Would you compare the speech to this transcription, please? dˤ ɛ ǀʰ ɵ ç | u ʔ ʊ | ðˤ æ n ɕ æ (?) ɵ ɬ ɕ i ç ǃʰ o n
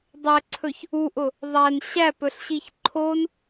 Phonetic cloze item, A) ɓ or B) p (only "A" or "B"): B